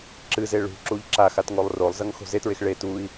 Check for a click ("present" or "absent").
present